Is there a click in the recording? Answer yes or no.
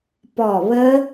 no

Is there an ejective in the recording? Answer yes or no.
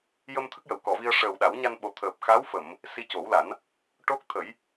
no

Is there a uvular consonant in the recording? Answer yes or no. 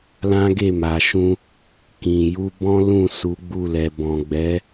no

